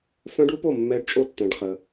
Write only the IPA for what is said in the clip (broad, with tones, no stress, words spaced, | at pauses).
fœ̃˦˥ɖu˨˥po˥˨ mːɛ˦˥ɖt͡ʃʼo˥˨tːɛ̃˧ɖχə˧